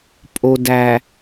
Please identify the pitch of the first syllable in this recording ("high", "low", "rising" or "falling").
low